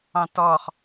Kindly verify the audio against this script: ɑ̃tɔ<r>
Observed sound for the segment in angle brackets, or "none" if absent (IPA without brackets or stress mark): χ